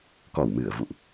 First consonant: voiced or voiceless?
voiceless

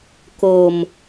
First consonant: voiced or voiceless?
voiceless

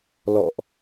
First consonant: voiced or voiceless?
voiced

